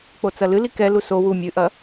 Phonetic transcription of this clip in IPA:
k͡p o t͡s ɐ l ɨ l i k ɛ l u s o w u mʲ ɨ ʔ ɐ

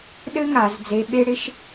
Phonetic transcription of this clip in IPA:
ɗ ɘ˥ ŋ a˩˧ z d͡z e˧ ɓ e˥ ɽ ɪ˥ ʃ

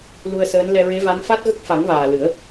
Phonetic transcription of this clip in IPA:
l u˧ ə̯ s əː˧˥ n l ɛ˧ ɹ e˧˥ v a˧˥ n f a˦˥ t̚ ɣ ə˦˥ k̚ f a˨˩˦ ŋ v aː˨˩ l ɨ˨˩˦ ə̯

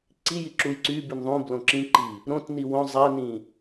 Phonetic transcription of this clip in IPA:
ǀ i j i ǁ u j ǀ y b y n ðˤ ũ b l õ ǁ ĩ ǃ i | ɾ õ t n i w õ zˤ æ n ĩ

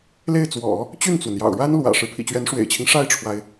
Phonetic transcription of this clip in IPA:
l e˥˩ ɪ̯ t͡s w ɔ̰˨˩˦ | t͡ɕ y˥˩ n t͡s w ə˩ n j ɑ̰˨˩ ʊ̯ ɻ a˥ n l w ä̰˨˩ ʂ ɻ̩˦ pʰ ḭ˨˩ t͡ɕ ɥ ɛ˧˥ n ʂ w ḛ˨˩ ɪ̯ t͡ɕʰ i˦ ŋ ʂ a˥˩ ɪ̯ ʈ͡ʂʰ w a˩ ɪ̯

